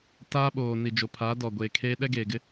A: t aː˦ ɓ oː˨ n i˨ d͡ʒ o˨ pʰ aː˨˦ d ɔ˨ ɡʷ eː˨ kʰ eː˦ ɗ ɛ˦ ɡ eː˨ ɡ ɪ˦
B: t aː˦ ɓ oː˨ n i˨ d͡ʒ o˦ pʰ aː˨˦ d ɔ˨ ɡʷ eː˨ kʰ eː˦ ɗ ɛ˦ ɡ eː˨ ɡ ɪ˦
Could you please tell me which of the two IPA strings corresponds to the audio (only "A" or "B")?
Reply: A